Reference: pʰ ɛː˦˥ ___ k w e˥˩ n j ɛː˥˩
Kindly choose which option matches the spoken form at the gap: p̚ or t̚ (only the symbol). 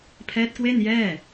t̚